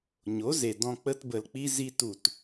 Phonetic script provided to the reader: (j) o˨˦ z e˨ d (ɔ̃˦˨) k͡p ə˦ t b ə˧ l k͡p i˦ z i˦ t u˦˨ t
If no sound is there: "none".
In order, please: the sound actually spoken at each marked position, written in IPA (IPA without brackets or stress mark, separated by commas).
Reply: ɲ, ɔ̃˧